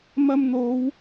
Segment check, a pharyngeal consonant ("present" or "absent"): absent